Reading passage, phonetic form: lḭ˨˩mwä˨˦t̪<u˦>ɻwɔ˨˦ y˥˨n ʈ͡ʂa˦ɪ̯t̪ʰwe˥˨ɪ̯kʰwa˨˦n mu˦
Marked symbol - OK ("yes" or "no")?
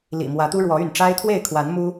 yes